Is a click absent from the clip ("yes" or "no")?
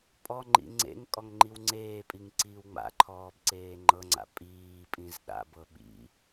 no